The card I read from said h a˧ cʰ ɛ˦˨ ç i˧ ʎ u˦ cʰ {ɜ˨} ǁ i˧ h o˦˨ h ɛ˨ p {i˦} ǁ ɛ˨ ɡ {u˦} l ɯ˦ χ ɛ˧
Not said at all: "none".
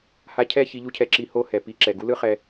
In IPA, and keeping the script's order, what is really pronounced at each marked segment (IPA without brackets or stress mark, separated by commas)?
ɛ˨, i˧, u˦